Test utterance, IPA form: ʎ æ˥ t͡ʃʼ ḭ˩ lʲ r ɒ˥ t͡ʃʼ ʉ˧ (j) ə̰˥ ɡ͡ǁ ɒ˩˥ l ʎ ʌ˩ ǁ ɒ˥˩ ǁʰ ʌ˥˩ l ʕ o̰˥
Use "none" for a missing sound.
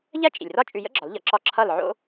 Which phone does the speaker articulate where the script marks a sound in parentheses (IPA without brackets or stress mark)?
j